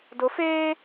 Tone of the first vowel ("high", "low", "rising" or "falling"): rising